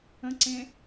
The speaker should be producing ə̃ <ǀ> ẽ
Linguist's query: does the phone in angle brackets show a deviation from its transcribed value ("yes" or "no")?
no